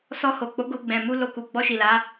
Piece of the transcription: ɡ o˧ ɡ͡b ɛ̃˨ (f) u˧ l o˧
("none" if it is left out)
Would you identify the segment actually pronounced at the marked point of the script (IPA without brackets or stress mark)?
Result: m